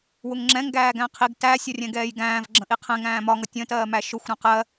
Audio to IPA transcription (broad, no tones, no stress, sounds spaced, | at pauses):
w ʊ ŋ ŋ͡ǁ ɛ̃ ŋ ɡ æː ɡ æ̃ qʰ i ɡ t æ sʲ ʌ rʲ ɛ̃ ɡ ɛː j ɡ æ̃ː v ɡ͡ǁ ə̃ ʔ i qʰ ɛ̃ ŋ æ̃ː m ɒ ŋ ʌ tʲ ə̃ t ɜː m æ ʃ ʊ xʷ ɾ æ̃ q ɜ